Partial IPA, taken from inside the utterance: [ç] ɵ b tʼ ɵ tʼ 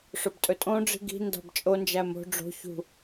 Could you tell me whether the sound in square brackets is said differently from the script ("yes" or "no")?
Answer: yes